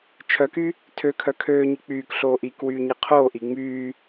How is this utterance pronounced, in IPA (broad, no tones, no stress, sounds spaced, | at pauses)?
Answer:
t͡ʃʰ œ k y | tʰ ø kʰ œ kʰ øː ɲ i k͡p yː k ɬ oː ʔ i k w yː ɲ i qʰ oː ʔ iː ŋ͡m yː